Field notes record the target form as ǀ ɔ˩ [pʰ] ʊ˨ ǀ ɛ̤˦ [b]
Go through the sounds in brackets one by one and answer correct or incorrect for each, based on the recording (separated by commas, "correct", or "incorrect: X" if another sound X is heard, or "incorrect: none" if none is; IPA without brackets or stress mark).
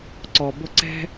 incorrect: b, incorrect: none